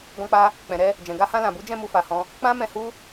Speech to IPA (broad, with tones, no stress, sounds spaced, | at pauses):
ɡ ɔ̃˦ k͡p a˦ | k͡p ɛ̃˨ ɾ ɛ˧ | d͡ʒ ɛ̃˨ ɡ a˧ h ã˧ l ã˨ b u˨˦ d͡ʒ ɛ̃˦˨ m u˧ f a˨ h ɔ̃˧ | k͡p ã˦ m ɛ̃˧ h u˦